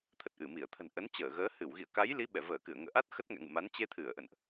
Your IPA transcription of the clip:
t̪ʰ ə˨˩ t̚ ʔ ɨ˧˩ m i˧˩ ə̯ t̪ʰ ə̤˨˩ n ʔ ə˨˦ n t͡ɕ əː˧˩ ɣ əː˨˦ h ɨ˧˩ w ɣ ḭ˧˨ ə̯ k a˨˦ j l i˨˦ ɓ ɛ˧˩ v əː˧˩ k ɨ˧˩ ə̯ ŋ ə̰ː˧˨ ʔ a˦˥ t̚ x ə˦˥ t̚ ŋ ɛ̰˧˨ ŋ ɨ̰˧˨ m a˨˦ n t͡ɕ e˧ t̪ʰ ɨ˧˩ ə̯ ʔ ə̰˧˨ n ʔ

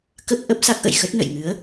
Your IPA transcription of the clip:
k ə˦˥ p̚ ʔ ə˦˥ p̚ s a˦˥ k̚ ʔ ə̰˧˨ j x ə˦˥ t̚ n ə̰˧˨ j ŋ ɨ˨˦ ə̯

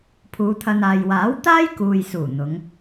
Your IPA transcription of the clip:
pʰ uː˨˧ t̪ʰ ɐ˧ n aː˨ j w aː˨˥ w t̪ aː˥ j k uː˧ j s uː˨˩ n̪ ʊ˨˧ ŋ

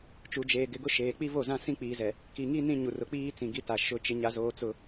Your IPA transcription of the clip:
t͡ʃ u˨ d͡ʒ eː˨ ɡ ɪ˨ ɡ ʊ˦ ʃ eː˨ k͡p i˦ v o˦˨ z ã˦ s ĩ˦ k͡p iː˨ z ɛ˨ | k i˨ ŋ i˦ n ĩ˦ ɲ u˨ r ʊ˨ k͡p iː˦ t͡s ĩ˨ ɡ i˦ t a˨ ʃ ʊ˦ t͡ʃ ɪ˦ ɲ a˨ z oː˨ t͡s ʊ˦

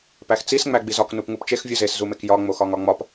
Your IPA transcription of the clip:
p æ x t͡s i s ŋ͡m æ ɡ͡b i z ɒ k n u p ŋ u p t͡ʃ e x vʲ u z e s z u m e k j ɒ ŋ͡m o x ɒ ŋ ɒ ŋ͡m ɒ p

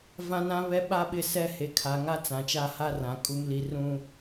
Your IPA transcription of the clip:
v ã˦ n ã˦ β ɛ˦ ɓ a˦ ɓ ɪ˦˨ s ɛ˦ h e˨ kʰ a˨ ŋ a˦ t͡s ã˨ t͡ʃ a˦ h a˦ r ã˨ kʼ u˦ m l i˦ r ũ˦

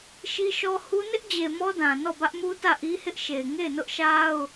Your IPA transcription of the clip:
ʃ i˦ ʃ ɔ˦ h u˦ n ɪ˦ ʔ d͡ʑ e˨ m ɔ˦ d ã˨ n ɔ˦˨ b ä˦ ʔ m u˦ t ä˦˨ ʔ i˦ h ɪ˦ ʔ ʃ e˨ ɪ̯ ŋ e˦˨ ɪ̯ n ʊ˦ ʔ ʃ a˦ ʊ̯

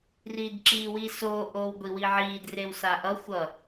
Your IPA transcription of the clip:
r iː d ǁ iː w i s oː ʔ oː w ɡʷ i w i ʕ iː d r e w s a ʔ ʌ xʷ ʌ

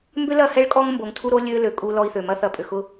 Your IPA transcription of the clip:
m b ʏ˦ l ɐ˦˨ h ɛ˦ ɭ kʼ ɔ˦ ŋ m b o˨ ŋ tʰ u˦ ɾ o˦ lʲ ø˦ l ø˨ kʼ u˦ l ɔ˦ i̯ θ ø˨ m ɐ˦ θ ɐ˨ pʼ ʏ˨ x ʊ˦

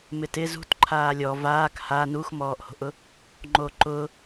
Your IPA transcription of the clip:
m ɪ t ɪ z ṳ t ǃʰ aː lʲ ɔ v aː k h a n u x m ɔː ʔ h o̤ ʔ ʊ | ŋ͡ǃ o ǃ ʊ

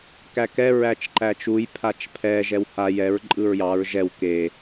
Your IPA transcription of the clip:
k æ k ɛ ɹ æ t͡ʃ ǃ æ t͡ʃ u j pʰ a t͡ʃ pʰ ɛ ʒ ɛ w h a j ɛ ɹ ǃʼ ɯ ɹ j ɑ ɹ ʒ ɛ w k e

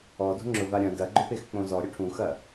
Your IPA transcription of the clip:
ɔ d o̤ ŋ͡ǁ ʊ v a ɾʲ ɐ̃ d ɐ ɡ͡ǃ ø p e x k͡p õ z ɔ ɾʲ ʊ ʈʰ ũ x ɐ

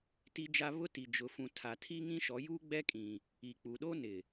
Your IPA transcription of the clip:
t i˦ d͡ʒ a˦ β ʊ˦ t i˨ d͡ʒ ʊ˨ f ũ˨ tʰ a˨ tʰ i˦ ŋ ĩ˦ ʃ ɔ˨˦ j uː˦ ɡ͡b ɛ˦ kʼ ĩ˨ | i˨ k͡p u˨ ɗ oː˦ n ɪ˨

